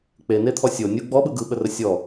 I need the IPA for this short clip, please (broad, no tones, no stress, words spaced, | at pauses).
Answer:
k͡penet̪ʰɔ sʲo nʲu ɡ͡bɔɓɯ ɡɯɓərə sʲɔ